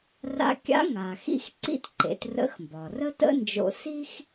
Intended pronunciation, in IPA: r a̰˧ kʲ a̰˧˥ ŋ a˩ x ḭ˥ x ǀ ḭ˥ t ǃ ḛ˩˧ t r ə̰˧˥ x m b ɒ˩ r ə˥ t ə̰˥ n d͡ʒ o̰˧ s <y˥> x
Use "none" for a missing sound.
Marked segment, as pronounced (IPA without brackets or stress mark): i˥